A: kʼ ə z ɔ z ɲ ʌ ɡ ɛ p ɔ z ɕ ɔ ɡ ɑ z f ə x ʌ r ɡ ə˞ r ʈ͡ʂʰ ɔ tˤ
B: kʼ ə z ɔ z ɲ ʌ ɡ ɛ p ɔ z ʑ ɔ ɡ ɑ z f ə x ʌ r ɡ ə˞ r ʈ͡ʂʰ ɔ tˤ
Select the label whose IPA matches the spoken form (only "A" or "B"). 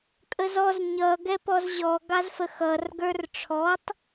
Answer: B